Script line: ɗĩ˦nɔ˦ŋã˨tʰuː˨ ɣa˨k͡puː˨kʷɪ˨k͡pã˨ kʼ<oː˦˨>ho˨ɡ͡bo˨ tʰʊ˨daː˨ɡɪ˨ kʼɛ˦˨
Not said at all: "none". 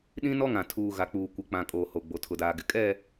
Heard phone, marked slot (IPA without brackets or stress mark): oː˨